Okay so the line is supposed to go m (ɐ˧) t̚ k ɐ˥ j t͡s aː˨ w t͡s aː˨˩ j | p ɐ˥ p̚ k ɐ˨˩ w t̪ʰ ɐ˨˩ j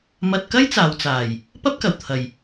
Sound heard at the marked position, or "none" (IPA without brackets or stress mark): ɐ˧